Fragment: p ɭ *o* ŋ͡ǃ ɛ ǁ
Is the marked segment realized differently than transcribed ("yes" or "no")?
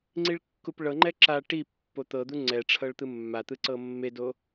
yes